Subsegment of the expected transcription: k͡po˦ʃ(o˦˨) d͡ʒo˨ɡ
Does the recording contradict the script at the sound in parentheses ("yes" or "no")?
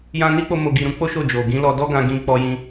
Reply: no